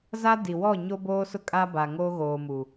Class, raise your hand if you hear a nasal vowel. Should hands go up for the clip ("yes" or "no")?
no